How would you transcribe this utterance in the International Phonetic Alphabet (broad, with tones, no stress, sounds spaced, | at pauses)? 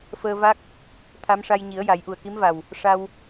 f əː˧ v a˦˥ k̚ | t̪ʰ a˧˥ m ʂ a˧ j ɲ i˨˩˦ ə̯ j a˨˩˦ j ʔ u˨˩ ə̯ k i˧˥ m v a˨˩ w | ʂ a˧ w